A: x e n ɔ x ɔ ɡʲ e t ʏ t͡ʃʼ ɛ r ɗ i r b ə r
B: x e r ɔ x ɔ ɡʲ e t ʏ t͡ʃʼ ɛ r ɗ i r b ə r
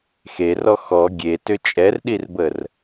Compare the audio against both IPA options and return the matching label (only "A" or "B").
B